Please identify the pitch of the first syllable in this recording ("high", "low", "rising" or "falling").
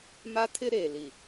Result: high